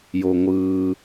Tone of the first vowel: low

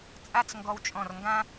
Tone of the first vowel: falling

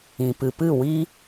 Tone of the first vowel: low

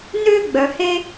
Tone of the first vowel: high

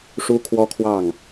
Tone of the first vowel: high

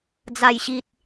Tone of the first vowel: falling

